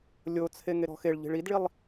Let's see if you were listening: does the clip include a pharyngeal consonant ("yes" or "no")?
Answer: no